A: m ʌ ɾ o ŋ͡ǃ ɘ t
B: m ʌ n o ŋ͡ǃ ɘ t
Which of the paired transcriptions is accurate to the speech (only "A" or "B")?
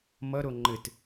A